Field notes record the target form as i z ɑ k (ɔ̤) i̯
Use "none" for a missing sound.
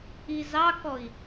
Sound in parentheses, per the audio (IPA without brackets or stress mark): ɔ